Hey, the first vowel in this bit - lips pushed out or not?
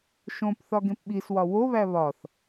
yes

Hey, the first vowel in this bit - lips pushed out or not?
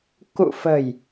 yes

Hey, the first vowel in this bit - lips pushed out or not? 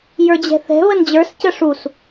no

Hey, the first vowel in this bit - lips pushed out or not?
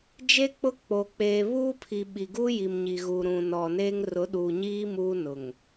no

